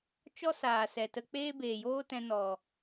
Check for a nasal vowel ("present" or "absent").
present